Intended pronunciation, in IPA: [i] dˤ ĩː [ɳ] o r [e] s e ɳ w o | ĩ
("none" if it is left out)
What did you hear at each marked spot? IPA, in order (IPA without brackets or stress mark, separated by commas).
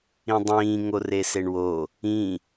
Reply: ĩ, ŋ, e